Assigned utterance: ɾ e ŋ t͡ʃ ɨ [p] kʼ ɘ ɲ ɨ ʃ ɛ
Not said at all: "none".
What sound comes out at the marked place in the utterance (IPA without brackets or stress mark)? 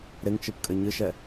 p